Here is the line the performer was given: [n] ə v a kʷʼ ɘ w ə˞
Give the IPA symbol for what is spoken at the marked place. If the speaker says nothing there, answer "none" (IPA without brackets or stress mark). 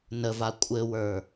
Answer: n